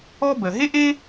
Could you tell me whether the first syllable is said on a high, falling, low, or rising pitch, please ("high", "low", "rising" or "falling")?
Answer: high